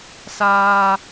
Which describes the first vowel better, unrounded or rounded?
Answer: unrounded